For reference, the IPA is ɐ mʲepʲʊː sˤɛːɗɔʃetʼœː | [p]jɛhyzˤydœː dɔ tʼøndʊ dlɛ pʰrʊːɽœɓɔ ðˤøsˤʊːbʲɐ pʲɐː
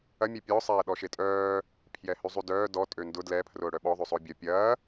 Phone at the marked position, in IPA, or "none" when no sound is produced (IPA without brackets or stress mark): pʰ